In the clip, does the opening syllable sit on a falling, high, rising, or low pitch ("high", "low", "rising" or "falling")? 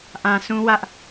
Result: low